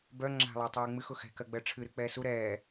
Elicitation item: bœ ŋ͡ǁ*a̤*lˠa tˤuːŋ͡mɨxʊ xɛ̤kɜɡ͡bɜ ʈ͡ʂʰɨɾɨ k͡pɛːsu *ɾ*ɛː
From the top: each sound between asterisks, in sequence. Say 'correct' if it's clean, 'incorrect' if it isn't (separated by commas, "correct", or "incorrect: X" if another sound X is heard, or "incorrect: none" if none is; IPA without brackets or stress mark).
correct, correct